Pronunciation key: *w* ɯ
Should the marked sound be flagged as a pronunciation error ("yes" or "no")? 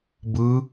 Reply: yes